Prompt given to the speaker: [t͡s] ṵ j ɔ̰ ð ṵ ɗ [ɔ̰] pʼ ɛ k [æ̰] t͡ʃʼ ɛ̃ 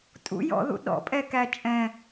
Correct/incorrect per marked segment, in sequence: incorrect: tʼ, correct, incorrect: æ

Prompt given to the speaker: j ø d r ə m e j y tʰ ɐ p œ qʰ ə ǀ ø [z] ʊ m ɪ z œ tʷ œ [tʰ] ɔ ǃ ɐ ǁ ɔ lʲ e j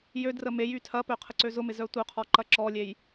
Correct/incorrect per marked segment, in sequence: correct, incorrect: qʰ

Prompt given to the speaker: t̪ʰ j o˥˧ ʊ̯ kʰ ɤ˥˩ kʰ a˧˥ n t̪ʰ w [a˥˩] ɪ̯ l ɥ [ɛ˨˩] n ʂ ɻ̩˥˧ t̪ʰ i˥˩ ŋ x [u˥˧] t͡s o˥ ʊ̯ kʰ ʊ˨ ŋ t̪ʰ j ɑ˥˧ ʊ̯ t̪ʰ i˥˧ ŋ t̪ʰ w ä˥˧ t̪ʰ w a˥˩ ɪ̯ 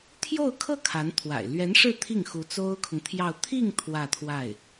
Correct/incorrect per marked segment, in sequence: incorrect: a̰˨˩, incorrect: ɛ˧˥, incorrect: u˧˥

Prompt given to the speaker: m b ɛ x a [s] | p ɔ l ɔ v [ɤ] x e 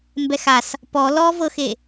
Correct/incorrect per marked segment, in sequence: correct, correct

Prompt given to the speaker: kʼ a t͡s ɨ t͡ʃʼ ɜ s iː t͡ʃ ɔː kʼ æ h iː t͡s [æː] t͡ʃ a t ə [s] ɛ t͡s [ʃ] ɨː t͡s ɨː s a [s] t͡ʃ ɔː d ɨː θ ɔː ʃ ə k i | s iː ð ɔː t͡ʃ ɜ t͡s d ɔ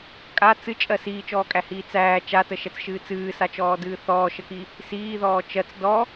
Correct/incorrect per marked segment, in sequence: correct, incorrect: ʃ, correct, incorrect: none

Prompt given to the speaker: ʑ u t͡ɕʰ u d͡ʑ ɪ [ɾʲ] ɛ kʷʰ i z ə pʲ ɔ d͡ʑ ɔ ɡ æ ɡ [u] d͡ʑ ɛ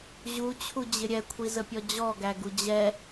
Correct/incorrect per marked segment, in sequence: correct, correct

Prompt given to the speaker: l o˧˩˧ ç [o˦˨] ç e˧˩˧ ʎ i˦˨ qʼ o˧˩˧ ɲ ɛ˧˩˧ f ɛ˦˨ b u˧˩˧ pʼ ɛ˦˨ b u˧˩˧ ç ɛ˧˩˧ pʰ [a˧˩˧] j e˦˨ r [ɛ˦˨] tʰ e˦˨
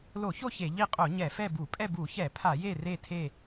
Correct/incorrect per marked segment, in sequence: correct, correct, incorrect: e˦˨

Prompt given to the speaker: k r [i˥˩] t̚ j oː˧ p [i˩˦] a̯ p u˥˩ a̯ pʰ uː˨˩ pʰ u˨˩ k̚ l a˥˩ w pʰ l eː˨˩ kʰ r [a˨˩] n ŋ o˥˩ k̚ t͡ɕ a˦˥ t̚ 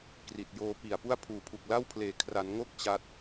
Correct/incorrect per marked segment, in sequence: incorrect: i˨˩, incorrect: i˨˩, incorrect: a˩˦

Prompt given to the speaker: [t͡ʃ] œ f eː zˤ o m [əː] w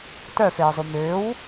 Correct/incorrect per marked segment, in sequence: incorrect: t, incorrect: ʏː

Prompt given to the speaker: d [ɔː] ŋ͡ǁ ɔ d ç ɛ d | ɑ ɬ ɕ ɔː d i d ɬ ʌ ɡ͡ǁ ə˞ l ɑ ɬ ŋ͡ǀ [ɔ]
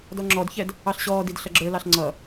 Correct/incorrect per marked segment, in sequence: incorrect: ɔ, incorrect: ʌ

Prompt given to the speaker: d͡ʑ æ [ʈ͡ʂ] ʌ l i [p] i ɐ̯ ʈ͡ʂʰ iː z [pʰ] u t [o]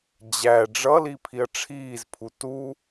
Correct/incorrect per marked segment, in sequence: incorrect: ɖ͡ʐ, incorrect: pʰ, correct, incorrect: u

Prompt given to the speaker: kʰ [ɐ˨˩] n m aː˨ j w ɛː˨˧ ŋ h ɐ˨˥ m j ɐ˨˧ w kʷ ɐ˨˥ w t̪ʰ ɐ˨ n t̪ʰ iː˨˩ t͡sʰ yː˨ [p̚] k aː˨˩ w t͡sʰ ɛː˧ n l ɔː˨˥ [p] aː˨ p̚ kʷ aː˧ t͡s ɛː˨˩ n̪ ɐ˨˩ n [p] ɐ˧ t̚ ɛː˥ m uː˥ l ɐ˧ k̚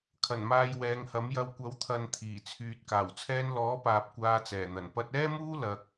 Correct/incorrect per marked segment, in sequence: correct, incorrect: t̚, correct, correct

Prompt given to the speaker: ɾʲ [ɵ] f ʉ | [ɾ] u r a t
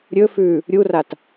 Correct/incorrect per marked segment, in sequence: correct, incorrect: ɾʲ

